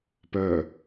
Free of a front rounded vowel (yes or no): no